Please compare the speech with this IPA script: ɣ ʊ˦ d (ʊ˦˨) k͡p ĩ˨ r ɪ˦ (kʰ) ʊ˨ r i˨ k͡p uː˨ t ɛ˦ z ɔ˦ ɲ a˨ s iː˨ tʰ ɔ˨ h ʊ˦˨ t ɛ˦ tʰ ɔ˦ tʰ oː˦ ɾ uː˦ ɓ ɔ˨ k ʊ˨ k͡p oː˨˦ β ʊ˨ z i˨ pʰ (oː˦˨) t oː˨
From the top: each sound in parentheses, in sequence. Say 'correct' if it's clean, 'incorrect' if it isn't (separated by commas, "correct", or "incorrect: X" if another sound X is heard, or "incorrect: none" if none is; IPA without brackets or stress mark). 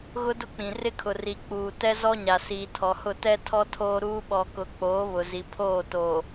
incorrect: ʊ˦, correct, correct